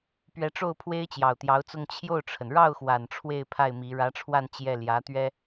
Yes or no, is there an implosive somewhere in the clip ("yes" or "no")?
no